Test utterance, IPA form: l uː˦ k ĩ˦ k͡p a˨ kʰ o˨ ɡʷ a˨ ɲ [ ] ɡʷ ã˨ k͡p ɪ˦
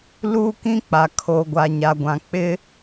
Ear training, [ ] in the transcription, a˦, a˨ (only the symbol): a˨